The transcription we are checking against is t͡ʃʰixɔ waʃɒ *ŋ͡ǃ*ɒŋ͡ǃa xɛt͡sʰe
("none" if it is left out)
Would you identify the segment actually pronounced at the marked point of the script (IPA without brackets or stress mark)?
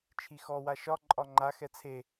ǃʼ